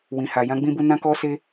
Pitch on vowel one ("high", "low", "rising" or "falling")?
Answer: low